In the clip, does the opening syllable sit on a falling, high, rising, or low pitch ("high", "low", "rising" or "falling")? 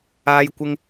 high